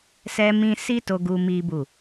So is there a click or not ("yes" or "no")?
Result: no